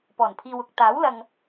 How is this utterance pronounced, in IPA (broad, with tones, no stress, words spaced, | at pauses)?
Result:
pɔː˨˩npʰiː˧wʊ˧k̚ t̪aː˨˥wlɐ˨ŋ